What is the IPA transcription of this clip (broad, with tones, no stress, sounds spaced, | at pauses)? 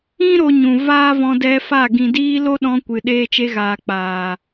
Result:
ĩ˦ ɾ o˧ ɲ ũ˨ v aː˦ v ɔ̃˧ d ɛ˧ f a˦˨ ɡ ĩ˨ d iː˧ l o˦ ɗ ɔ̃˧ kʷ ɨ˨ ɗ eː˧ t͡ʃ e˧ ɣ aː˨ k͡p aː˨